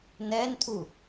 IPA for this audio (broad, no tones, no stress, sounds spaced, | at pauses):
n ɛ n tʰ u